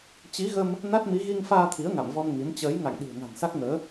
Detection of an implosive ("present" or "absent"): present